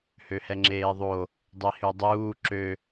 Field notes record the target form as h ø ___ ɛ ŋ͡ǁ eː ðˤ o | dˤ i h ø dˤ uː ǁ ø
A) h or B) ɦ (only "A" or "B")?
A